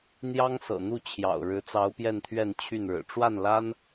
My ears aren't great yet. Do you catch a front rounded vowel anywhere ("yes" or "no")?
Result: yes